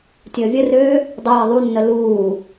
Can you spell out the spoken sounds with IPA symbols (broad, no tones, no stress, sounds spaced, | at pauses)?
tʲ əː vʲ ə r øː | dˤ ə j ə ðˤ u nː ə l uː